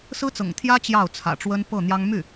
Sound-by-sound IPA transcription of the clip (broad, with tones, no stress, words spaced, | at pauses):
sɹ̩˥t͡sɤ̰˨˩ŋt̪ʰjä˥ t͡ɕjɑ˥˩ʊ̯t͡sʰä̰˨˩ʈ͡ʂwə˥n pɤ˥˩n̪jɑ˥ŋ my˥˩